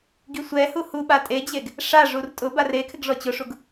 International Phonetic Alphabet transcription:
ɡisʷɛhu huɓa tʼed͡ʑeɡ | ʂaʐur tʼʊbar ekʰɪɡ ʐɔt͡ɕʊʂuɡ

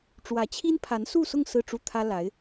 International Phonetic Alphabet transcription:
ʈ͡ʂwä˧˥t͡ɕʰi˥npʰa˧˥n su˥˧sʊ˥˧ŋ sɹ̩˥˧ʈ͡ʂu˥˩t̪ʰä˥la˧˥ɪ̯

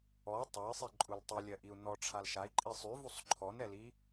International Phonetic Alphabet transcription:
ɔ tˤɜi̯sˤiǃʼul tˤilʲɜʔiu̯ nɔʈ͡ʂʰal ʃai̯ǃʼi sˤyvusˤ ǃʰɔnɛli

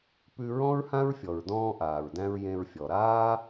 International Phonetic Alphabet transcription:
pʉ˧ ɹɔ̃˥ɹhã˥ɹfʲɔ˩ɹ dɔ̃ː˧ʔaː˩ɹdæ̃˧ɹ jẽ˧ɹfʲɔ˩ ɾaː˥

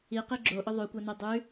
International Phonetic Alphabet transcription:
iqi ɡ͡ǁoʔɵ ðˤʉkʷanʉ dˤʉ

